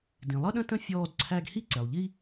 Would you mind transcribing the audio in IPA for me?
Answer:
d ĩ˩ lˠ ʌ˦ ɗ ə̃˦ t ə̃˦ fʲ ɔː˦ d ǀʰ æ˦ ɡ h i˦ ǀ ɛ˩ lˠ ʎ i˦

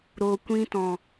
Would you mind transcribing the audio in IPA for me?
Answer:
ɾ o˨ kʷ ĩ˧ t ɔ̃˨

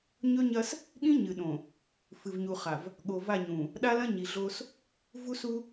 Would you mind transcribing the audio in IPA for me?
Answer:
ɲ ɵ˦ ɲ ɐ˦ s | ɠ ĩ˦ ɲ ɨ˨ ɗ õ˨ | f ɨ˨ v ɲ u˨ χ a˨ v | ɠ o˨ v a˦˨ ɲ ũ˨ | ɗ a˦ l ɐ̃˦ ɲ i˨ ɮ o˦ s | v u˦ s u˦

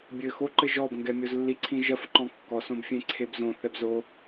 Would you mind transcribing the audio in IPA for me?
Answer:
bʲ ɘ x o ǃ ɘ ʒ ɔ b ŋ ɡ ɛ mʲ o z lː i ǀʰ ĩ ʒ ɜ f ǃ ɔ̃ kː ɔ s õ b fʲ ẽ ǀʰ e b z õ θ ɛ b z o

